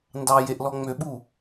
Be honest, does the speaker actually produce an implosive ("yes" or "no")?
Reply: yes